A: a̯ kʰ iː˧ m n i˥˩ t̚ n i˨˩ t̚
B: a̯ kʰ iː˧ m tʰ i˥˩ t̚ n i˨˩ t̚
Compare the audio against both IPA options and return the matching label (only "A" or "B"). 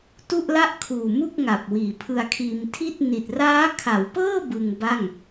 B